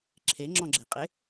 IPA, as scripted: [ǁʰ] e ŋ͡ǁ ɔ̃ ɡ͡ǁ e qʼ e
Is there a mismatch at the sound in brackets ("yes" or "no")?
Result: no